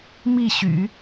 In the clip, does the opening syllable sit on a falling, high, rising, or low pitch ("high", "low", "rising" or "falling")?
falling